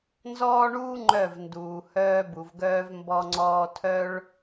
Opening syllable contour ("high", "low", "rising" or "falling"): high